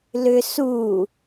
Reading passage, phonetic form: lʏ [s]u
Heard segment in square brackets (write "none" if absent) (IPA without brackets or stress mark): s